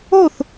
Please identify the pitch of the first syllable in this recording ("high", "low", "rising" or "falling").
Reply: falling